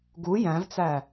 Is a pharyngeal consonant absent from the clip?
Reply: yes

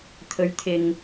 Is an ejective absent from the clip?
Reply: yes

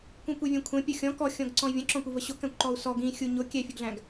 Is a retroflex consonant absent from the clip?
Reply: yes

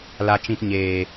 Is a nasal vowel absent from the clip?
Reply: no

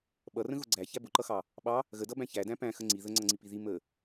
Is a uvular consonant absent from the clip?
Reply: yes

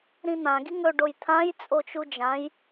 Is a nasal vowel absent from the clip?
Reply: no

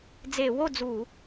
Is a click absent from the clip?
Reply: yes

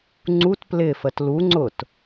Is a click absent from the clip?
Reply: no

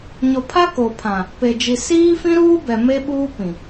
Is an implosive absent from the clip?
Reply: no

